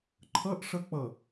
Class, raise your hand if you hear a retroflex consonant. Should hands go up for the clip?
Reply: yes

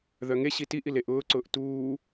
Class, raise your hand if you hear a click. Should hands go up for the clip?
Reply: yes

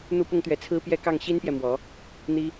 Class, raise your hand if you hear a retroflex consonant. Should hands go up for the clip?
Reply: no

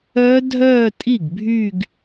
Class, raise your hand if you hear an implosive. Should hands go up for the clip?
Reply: no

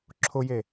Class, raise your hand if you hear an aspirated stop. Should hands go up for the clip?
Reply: yes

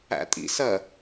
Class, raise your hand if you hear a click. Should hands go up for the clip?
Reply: no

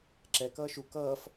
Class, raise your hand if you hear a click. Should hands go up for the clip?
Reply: yes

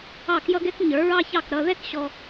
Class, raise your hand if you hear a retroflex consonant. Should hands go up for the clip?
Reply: no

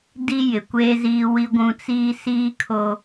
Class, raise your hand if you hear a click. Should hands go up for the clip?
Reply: no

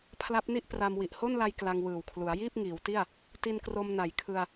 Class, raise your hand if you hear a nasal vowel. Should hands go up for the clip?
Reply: no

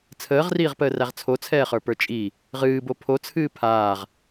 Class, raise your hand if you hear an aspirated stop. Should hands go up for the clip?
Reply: yes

